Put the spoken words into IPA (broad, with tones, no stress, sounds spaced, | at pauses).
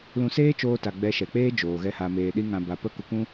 l ũ˧ s eː˦ t͡ʃ oː˧ t a˨ ɡ͡b ɛ˧ ʃ ɛ˨ k͡p eː˦ d͡ʒ oː˨ ɣ ɛ˦ h a˧ m eː˧ ɗ i˦ ŋ ã˧ b a˨ p ə˦˨ k u˧ k ũ˦